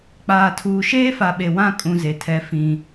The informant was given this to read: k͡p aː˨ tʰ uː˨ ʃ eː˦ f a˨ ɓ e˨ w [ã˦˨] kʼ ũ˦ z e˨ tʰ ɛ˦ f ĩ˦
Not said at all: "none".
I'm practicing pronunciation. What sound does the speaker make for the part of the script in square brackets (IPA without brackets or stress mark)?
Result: ã˦˨